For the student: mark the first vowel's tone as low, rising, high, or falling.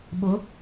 rising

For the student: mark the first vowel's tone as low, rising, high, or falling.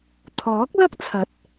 rising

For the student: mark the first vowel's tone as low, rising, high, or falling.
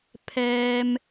high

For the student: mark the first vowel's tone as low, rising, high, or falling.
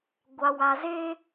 low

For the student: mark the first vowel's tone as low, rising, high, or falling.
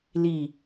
low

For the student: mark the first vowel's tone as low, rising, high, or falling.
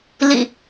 low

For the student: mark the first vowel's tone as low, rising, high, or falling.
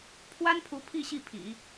high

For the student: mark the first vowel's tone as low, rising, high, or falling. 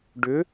rising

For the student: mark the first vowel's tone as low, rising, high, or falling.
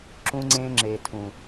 high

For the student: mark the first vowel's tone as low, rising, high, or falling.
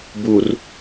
low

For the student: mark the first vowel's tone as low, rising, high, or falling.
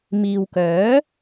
low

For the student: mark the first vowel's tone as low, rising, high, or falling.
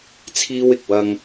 high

